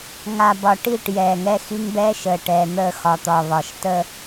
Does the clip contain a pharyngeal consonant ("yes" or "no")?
no